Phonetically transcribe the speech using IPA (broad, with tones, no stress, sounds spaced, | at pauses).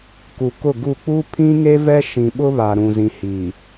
k u˨ k ʊ˦˨ ɡ u˦˨ k͡p u˦ pʰ ĩ˦ ŋ e˦ v ɛ˦ ʃ ĩ˨ ɓ ʊ˦ β a˨ ɾ ũ˨ z ĩ˨ h iː˨